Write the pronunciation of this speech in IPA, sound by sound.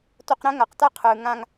t o˧ q ɾ ɛ̃˦ ŋ a˨ q t a˦˨ qʰ ɯː˨ ŋ ã˧ ŋ

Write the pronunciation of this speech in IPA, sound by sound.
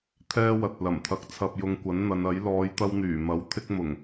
t̪ʰ ɛː˥ w ɐ˨ t̚ l ɐ˨˩ m t̪ʰ ɐ˧ k̚ t͡sʰ ɐ˧ p̚ j ʊ˧ ŋ kʷ ɐ˨˥ n n̪ ɐ˨˧ n ɐ˨˥ j l ɔː˨˧ j t̪ ɐ˧ w n̪ yː˨˩ m ɐ˨˥ w t̪ʰ ɪ˥ k̚ m ʊ˨˩ ŋ

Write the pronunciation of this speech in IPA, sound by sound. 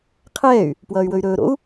qʰ ɛː y̯ | p w ʌː y̯ w ɵ y̯ ɾ ɵː ɾ o̰ u̯

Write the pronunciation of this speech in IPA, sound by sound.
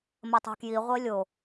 m ɐ tˤ ɛ̤ k j i ʁʷ e lʲ o

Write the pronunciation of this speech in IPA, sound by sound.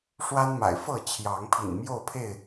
ʂ w a˦ n m a̰˨˩ ɪ̯ f ɤ˥˨ t͡ɕʰ j ɑ˨˦ ŋ pʰ ḭ˨˩ n m j o˥˨ ʊ̯ pʰ e˥˨ ɪ̯

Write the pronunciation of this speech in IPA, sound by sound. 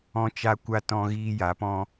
ɔ̃˦ t͡ʃ a˦ kʷ a˦ t ɔ̃˦ ɣ iː˦ j a˨˦ p ɔ̃˦

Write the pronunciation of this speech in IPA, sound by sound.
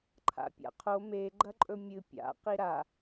ǃʰ a̰ pʲ a̰ qʰ o m e ɡ͡ǃ ɐ ǃʼ ɵ mʲ ɨ pʲ a̰ q i ɾ a

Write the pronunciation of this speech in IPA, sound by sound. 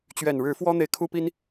t͡ɕ ɥ ɛ˨˩ n ɻ ɻ̩˨˦ f w ɔ˦ n̪ e˨ ɪ̯ kʰ u˦ p i˦ n

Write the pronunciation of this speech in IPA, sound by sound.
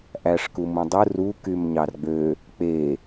ʔ æ ʂ k u m ũ dˤ ɯ r u k y m ɲ ɑ r ɡ͡b ø | k͡p e

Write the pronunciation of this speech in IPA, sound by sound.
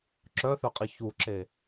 ǁ œ θ œ qʼ i ç u ǁ e

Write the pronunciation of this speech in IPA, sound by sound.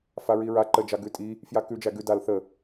f a ɹ i ɹ a ǃ ə d͡ʒ a ɡ ʉ tʼ i | f j a k ʉ d͡ʒ æ ɡ ʉ d a l θ ə

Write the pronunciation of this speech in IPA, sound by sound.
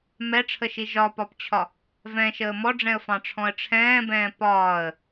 m ɛ ʈ͡ʂʰ ə ʃ i ʒ ɒ p ɒ p t͡ɕʰ ɒ | v ɛ̃ ʃ əː m ɔ ɖ͡ʐ ɛ̃ ə̯ f ɑ̃ ʈ͡ʂʰ ɔ̃ ə̯ ʈ͡ʂʰ ɛ̃ː b ɛ̃ː p ɒː ə̯

